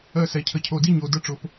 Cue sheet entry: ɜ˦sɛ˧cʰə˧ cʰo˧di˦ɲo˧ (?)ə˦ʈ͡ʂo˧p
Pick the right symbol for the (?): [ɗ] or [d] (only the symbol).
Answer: d